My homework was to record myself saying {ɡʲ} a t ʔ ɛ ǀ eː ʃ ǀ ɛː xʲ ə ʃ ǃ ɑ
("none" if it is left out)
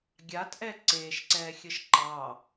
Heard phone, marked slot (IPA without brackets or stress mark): ɡʲ